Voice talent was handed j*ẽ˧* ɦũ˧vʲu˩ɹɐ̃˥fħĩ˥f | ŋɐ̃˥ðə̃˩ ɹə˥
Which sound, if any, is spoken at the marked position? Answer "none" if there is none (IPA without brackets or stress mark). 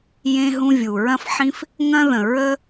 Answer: ẽ˧